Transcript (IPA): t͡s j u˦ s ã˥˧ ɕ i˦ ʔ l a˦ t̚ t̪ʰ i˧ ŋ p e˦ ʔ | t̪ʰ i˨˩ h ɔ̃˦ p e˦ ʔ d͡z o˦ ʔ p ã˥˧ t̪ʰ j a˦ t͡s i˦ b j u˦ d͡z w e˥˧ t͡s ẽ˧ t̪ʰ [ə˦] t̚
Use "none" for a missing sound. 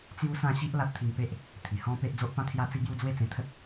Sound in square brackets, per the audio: ə˦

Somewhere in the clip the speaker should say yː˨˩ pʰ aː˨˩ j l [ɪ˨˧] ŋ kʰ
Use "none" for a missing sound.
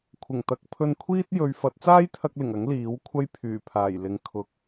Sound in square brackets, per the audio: ɪ˨˧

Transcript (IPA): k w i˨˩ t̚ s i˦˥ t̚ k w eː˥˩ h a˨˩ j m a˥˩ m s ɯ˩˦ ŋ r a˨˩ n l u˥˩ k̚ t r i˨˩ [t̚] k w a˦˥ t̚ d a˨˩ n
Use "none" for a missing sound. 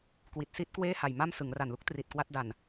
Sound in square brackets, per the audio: t̚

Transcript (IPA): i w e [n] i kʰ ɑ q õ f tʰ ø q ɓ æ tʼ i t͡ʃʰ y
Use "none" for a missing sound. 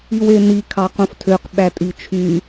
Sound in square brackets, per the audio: n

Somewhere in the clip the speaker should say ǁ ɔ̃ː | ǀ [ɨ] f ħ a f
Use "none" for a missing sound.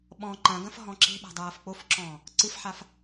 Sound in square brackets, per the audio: ɨ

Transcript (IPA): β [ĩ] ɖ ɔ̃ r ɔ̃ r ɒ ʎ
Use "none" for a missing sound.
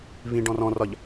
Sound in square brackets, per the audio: ĩ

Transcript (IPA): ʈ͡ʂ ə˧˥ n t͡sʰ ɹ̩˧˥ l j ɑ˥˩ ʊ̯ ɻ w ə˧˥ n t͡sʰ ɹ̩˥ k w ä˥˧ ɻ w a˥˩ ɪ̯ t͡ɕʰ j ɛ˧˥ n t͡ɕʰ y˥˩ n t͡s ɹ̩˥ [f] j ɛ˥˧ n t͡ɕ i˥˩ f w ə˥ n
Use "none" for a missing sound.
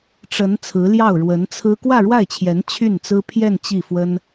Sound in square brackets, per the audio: pʰ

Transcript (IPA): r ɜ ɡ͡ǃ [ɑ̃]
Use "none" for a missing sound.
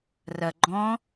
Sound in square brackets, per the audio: ɔ̃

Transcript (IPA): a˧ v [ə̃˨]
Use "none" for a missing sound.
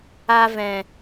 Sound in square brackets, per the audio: ɛ̃˨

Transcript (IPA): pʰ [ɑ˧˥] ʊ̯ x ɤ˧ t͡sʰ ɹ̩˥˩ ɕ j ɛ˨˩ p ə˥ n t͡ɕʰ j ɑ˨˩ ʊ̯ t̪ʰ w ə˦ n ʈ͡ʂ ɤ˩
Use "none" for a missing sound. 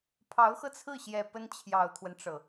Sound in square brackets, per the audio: ɑ˧˥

